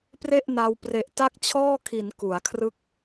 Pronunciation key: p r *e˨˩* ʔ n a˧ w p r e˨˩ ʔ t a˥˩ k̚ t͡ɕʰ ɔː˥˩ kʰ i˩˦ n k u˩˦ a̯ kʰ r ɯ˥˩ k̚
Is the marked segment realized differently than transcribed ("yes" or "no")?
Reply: yes